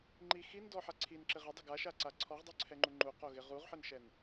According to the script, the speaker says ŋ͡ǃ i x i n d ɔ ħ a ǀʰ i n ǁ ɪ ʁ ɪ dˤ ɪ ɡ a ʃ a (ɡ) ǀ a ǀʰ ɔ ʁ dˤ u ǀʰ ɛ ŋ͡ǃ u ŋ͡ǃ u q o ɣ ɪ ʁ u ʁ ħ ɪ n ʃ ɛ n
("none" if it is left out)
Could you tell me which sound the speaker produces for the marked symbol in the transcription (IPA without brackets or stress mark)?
none